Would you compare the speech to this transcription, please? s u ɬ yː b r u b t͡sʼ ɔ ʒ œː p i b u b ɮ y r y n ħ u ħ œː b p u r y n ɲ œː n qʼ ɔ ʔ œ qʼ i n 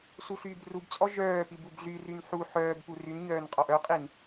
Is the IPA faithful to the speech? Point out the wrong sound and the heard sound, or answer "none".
none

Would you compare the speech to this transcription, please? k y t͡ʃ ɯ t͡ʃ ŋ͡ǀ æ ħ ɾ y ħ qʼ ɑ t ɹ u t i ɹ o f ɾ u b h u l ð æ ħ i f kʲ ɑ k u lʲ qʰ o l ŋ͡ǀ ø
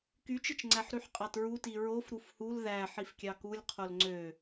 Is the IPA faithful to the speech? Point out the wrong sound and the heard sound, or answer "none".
b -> f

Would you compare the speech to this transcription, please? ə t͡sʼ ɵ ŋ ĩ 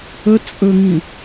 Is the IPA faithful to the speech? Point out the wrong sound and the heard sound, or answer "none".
none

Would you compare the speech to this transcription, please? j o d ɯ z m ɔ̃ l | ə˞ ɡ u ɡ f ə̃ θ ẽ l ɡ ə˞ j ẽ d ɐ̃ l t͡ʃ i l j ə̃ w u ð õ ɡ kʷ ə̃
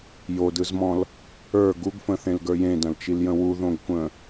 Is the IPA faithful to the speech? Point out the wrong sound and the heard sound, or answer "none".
none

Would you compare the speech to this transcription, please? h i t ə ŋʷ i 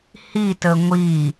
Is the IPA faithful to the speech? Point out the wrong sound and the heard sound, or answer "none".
none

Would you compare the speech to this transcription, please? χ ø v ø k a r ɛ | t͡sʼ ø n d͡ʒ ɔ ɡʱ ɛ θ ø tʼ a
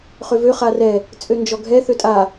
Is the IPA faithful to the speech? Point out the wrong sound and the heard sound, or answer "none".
k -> χ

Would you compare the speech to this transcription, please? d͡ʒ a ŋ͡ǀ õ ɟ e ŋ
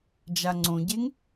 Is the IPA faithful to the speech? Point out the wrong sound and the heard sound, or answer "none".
none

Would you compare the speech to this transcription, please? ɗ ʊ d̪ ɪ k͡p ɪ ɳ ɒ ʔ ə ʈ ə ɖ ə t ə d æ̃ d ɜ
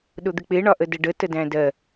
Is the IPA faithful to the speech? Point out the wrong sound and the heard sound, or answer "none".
ʈ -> d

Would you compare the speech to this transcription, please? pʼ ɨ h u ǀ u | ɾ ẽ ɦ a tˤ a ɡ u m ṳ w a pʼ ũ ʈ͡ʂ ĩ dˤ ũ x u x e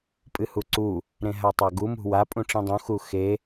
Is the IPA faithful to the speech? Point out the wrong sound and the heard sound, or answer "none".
none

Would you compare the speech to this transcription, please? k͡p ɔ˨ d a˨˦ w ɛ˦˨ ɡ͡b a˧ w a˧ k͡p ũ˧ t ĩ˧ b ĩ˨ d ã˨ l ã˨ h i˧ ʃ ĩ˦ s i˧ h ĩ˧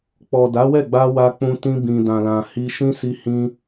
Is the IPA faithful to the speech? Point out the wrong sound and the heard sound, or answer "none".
none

